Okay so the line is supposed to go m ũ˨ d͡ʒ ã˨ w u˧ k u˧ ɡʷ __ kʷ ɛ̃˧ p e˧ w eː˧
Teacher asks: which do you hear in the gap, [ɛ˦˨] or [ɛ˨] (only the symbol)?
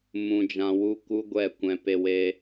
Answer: ɛ˦˨